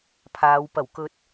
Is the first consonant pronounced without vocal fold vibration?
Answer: yes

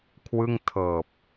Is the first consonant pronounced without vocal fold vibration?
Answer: yes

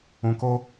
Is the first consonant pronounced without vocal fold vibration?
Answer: yes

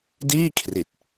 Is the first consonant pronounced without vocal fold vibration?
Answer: no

